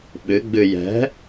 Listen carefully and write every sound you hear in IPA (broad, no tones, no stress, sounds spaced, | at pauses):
ɓ ɨ ɡ͡b ɨ j ɛ̤